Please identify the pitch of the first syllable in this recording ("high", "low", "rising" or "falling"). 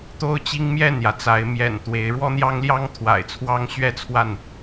high